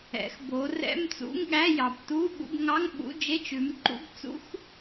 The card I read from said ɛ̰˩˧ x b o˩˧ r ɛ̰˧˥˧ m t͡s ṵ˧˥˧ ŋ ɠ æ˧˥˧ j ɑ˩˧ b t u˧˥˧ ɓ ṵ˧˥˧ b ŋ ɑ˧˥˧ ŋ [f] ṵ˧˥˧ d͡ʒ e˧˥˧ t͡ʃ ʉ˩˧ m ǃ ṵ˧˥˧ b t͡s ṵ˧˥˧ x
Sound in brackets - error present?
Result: yes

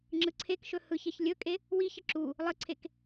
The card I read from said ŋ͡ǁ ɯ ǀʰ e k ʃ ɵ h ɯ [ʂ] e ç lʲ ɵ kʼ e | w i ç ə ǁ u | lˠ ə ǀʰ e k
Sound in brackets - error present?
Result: yes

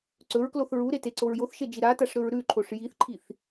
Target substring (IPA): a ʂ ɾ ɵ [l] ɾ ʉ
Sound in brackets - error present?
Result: yes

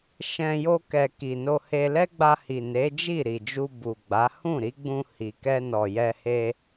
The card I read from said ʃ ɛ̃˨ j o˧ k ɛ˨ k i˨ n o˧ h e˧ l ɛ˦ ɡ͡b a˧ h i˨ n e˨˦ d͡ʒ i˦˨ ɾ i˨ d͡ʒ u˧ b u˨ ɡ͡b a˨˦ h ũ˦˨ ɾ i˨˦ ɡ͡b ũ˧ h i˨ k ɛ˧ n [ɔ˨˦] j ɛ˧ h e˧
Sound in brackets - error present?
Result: yes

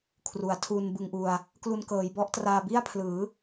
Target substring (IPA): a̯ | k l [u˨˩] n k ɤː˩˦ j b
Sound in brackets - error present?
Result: yes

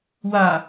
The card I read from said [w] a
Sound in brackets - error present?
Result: no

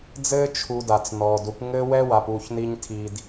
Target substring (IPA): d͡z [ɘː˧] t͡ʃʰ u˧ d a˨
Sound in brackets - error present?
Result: yes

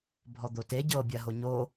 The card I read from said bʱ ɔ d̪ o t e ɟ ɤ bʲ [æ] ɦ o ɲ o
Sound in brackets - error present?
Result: yes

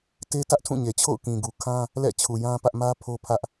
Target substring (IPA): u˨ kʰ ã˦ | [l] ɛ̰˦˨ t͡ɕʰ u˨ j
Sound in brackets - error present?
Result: no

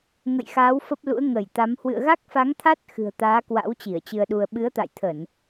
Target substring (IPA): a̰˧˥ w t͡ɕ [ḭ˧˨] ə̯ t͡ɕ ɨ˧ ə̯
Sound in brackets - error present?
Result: yes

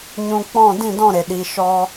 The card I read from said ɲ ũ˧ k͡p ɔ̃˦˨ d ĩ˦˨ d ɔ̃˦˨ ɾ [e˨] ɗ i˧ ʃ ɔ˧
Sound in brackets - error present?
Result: no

